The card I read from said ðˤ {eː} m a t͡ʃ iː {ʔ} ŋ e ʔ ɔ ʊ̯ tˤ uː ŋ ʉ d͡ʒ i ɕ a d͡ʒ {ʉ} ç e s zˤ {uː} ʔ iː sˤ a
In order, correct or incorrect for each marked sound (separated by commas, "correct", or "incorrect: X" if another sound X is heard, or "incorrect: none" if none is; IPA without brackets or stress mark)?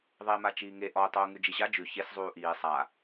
correct, incorrect: none, correct, correct